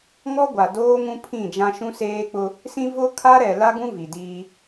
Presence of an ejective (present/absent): absent